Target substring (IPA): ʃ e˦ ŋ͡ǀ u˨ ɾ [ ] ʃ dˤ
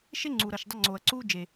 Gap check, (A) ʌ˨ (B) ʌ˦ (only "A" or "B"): A